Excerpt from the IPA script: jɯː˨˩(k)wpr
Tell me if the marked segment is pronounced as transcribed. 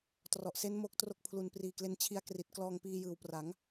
no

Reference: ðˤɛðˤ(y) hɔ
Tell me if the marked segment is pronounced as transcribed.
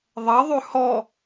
yes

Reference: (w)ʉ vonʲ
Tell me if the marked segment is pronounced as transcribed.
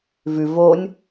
no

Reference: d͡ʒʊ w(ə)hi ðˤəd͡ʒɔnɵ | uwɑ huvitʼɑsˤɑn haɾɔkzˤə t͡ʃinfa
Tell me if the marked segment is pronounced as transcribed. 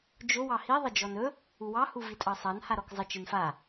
no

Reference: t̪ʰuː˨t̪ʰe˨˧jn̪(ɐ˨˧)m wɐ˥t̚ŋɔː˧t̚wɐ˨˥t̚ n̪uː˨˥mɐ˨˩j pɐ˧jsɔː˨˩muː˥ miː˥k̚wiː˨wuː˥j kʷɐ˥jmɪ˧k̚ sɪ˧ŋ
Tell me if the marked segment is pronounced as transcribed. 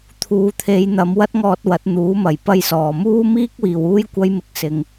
yes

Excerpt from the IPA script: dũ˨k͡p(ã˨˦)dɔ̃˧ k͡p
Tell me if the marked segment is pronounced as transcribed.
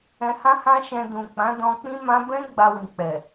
yes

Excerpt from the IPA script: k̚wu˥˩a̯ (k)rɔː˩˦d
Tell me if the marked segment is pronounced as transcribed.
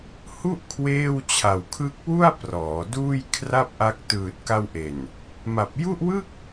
no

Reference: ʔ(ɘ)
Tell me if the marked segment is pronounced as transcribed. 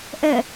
no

